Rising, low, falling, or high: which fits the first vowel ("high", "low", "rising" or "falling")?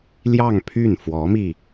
falling